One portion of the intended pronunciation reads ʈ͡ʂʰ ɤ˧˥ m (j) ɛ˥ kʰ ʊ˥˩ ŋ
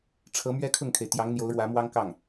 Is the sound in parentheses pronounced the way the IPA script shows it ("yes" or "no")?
no